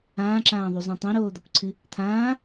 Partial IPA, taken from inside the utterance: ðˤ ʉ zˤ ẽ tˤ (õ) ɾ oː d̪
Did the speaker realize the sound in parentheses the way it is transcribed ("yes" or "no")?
yes